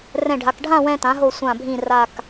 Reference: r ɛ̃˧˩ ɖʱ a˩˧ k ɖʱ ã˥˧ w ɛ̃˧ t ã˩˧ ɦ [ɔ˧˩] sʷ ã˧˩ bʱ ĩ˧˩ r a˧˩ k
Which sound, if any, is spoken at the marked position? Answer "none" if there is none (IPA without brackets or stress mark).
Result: o˧˩